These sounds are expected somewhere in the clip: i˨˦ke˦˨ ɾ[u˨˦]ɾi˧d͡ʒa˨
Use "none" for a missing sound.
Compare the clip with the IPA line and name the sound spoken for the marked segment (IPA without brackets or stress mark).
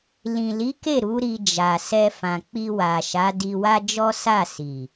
u˨˦